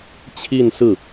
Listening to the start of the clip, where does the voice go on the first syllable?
falling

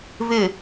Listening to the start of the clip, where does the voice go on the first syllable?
falling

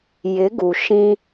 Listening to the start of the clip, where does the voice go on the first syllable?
rising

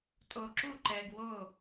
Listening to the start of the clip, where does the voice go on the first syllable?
low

